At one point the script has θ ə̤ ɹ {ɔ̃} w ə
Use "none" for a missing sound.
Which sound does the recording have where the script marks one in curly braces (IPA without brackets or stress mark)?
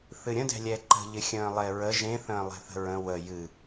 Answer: ə̃